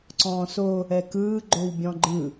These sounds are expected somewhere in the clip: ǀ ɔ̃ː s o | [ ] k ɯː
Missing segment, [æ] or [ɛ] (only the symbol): ɛ